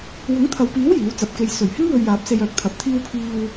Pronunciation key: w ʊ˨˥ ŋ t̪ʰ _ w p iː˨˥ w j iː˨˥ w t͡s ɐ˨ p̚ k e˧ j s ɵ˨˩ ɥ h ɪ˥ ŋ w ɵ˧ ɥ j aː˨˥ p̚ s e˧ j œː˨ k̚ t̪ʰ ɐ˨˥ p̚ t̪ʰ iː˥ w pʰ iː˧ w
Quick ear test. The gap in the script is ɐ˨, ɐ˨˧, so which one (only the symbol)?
ɐ˨